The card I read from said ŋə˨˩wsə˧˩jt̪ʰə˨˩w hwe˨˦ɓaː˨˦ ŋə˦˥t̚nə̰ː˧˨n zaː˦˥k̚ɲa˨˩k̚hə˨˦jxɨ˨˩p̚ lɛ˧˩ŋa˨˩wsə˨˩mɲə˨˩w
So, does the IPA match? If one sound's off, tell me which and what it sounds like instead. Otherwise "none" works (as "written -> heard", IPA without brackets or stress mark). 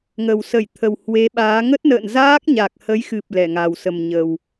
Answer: none